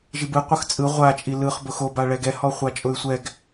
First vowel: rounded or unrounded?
unrounded